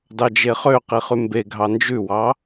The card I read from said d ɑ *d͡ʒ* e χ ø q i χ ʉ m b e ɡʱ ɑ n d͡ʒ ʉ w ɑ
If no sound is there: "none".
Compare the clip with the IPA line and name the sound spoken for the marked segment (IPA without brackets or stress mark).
d͡ʒ